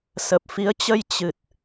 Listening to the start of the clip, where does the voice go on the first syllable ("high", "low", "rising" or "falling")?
low